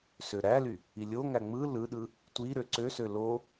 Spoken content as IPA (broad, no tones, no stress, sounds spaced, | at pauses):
s ø ɾ æ l y | i lʲ o ŋ æ ŋ͡m ɯ l ɯ ɗ ɯ | tʷ i ɾ ø ǀ ø s ø l o